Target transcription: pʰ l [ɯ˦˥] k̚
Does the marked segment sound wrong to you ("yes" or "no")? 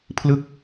no